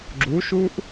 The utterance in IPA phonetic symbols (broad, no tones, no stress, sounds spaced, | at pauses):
ɡ͡ǁ u ʃ u ʔ